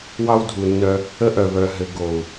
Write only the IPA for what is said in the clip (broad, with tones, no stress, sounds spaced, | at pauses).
w ɑ˦ w dʱ u˨ nː œ˧ | ə˦ ʔ œ˨ β œ˨ ɦ ɘ˨ ɡ o˨ u̯